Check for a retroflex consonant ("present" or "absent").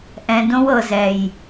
absent